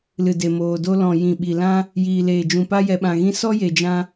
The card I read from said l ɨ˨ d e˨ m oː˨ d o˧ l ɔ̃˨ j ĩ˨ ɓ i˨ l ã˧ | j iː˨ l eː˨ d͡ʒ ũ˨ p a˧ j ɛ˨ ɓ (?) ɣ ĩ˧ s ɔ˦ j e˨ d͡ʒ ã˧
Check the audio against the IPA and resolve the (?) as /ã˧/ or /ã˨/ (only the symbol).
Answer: ã˨